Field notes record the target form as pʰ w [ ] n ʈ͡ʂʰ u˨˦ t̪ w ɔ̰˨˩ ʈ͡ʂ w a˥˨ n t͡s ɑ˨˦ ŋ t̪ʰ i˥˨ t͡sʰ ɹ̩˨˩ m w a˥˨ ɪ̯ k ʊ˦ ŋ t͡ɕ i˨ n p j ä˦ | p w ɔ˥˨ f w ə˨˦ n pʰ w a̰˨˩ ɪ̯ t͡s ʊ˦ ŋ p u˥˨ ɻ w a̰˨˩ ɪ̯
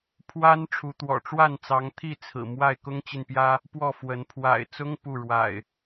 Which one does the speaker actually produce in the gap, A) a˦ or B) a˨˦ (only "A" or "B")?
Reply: A